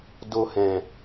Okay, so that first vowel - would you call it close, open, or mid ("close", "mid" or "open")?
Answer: mid